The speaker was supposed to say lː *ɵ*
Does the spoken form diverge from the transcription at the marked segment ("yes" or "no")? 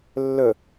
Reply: no